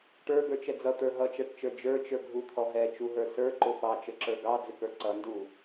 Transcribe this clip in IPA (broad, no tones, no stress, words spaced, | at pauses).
ʈə˞ɡə˞t͡ʃɛ d͡zʌt̪ə˞ ɦʌt͡ʃæʈt͡ʃə˞ d͡ʒə˞t͡ʃə˞ɡʱut̪ʰɔ ɦɛt͡ʃuɦə˞ sə˞ǃʊ fɑt͡ʃəǁə˞ ɡɑd͡zɪkə˞ ǀʌndu